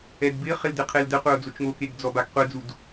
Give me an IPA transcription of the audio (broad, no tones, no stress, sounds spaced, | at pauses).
ɛ d b ɪ χ ɪ l d ɪ qʰ e l d ɛ qʷ ɛ o̯ d͡z o t͡ʃ ŋ o k e ɡ d͡z ɔ b a ɡ qʷ ɛ d͡z u d